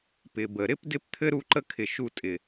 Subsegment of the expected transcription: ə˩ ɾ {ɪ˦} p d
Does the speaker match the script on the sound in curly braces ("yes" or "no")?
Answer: yes